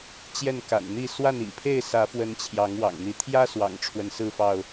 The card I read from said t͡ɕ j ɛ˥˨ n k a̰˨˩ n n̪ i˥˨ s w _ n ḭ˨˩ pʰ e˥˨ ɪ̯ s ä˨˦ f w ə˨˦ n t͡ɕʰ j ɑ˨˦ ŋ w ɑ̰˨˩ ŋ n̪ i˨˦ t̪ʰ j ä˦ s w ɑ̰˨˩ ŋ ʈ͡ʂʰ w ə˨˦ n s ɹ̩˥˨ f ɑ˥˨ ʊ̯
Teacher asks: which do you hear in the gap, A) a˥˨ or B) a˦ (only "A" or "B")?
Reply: A